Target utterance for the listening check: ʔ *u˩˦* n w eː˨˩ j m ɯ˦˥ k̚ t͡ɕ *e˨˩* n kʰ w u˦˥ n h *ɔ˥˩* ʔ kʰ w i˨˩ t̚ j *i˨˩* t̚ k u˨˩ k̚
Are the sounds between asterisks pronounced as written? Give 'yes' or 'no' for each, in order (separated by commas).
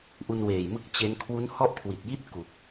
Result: no, no, yes, no